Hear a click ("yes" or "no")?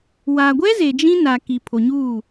no